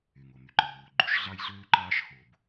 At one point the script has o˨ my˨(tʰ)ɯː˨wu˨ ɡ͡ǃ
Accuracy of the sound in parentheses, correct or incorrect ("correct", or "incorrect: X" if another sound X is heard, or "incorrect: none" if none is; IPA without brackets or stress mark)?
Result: incorrect: ǃ